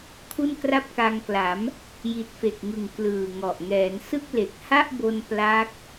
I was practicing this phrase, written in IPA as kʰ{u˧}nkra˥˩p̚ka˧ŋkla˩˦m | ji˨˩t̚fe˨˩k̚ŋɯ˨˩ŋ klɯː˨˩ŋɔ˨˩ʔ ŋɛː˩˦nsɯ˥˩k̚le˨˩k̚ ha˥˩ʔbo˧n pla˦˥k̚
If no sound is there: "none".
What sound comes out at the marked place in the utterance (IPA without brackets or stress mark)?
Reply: u˥˩